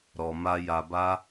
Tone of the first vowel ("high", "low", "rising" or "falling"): low